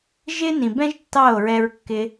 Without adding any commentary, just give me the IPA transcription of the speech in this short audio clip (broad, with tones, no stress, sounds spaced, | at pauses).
ʒ ɪ˦ n ĩ˨ b ɛ̃˦ ʒ tː ɑ˦˨ o̯ ɹ ɛ˧ ɹ kː ɪ˧